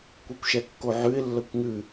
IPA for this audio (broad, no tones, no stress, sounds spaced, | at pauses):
kʷ e kʷ ʃ ɛ kː o ʕ ʉ ɪ̯ lː ə kʷ ŋ ʉ